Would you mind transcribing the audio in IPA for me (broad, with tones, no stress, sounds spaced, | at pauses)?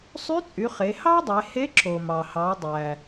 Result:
sˤ y˧˥ t͡sʼ y˩˧ χ e˩˧ h ɑ˥ dˤ e˩˧ h e˧˥ ǁ o˩ m ɑ˩ h ɑ˩˧ dˤ æ˩